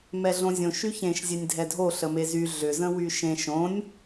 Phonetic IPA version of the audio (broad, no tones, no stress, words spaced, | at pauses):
mɛɮõzʲõ ʃyçẽʃ zʲɛnʲdʱɛdʱo ɬəmezy ɮʏ zə̃wyʃẽʃ õnʲ